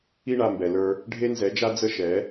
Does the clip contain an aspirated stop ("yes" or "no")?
no